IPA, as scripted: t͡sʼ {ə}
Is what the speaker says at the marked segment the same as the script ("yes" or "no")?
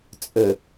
yes